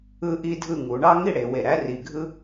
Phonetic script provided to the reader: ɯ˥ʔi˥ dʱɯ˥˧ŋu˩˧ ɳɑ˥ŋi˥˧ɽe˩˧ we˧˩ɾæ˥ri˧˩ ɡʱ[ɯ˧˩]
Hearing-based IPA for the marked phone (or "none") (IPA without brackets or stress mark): ɯ˥